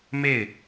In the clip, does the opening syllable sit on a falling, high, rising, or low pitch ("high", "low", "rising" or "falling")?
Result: falling